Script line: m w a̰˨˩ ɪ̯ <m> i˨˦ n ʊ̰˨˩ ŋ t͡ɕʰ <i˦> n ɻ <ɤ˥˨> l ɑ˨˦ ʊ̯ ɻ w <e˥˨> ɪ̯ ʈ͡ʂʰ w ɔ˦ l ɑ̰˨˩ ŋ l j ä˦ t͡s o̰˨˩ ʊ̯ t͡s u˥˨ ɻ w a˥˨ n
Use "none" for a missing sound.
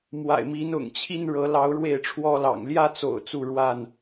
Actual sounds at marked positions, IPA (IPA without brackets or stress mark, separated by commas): m, i˦, ɤ˨˦, e˥˨